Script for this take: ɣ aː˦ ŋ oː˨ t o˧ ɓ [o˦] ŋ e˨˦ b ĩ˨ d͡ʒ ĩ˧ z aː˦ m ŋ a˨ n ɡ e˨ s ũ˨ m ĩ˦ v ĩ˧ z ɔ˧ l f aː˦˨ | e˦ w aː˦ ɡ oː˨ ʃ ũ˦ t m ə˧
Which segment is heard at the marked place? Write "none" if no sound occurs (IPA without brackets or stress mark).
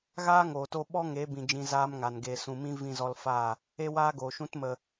ɔ˦